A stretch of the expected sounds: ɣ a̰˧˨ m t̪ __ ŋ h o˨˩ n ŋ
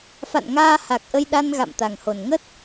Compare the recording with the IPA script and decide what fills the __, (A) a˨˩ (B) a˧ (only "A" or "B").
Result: A